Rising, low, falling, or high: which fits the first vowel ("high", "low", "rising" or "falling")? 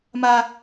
high